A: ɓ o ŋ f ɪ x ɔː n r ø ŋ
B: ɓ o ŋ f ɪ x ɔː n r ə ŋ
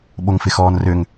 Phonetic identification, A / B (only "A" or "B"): A